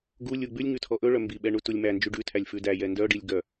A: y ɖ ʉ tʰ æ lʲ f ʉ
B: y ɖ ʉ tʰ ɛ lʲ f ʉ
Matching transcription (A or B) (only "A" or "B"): A